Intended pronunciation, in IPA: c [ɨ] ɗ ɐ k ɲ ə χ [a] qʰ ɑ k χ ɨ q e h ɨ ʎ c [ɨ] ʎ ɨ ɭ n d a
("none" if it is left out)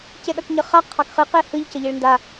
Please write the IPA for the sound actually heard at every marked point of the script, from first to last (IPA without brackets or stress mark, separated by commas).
e, a, ə